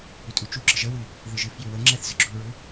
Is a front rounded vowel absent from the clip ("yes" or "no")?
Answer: no